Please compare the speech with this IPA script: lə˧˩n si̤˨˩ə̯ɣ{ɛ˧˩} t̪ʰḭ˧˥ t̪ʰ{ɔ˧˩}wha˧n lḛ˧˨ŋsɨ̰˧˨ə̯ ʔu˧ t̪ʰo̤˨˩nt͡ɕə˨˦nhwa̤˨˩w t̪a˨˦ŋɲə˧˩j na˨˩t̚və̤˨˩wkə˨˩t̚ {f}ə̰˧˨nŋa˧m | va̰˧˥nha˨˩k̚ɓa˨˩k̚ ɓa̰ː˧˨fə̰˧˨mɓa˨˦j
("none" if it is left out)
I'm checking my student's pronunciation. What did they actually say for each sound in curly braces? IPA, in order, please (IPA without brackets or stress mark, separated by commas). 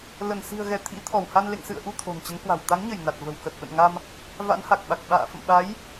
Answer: ɛ˧˩, ɔ˧˩, ɓ